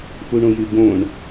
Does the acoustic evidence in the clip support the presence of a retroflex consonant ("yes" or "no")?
yes